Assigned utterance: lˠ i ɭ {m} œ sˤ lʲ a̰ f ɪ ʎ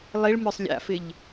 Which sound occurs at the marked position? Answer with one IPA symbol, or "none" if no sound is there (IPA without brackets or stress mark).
m